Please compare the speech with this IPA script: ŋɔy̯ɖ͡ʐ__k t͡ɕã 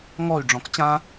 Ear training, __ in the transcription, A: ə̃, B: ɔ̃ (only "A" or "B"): B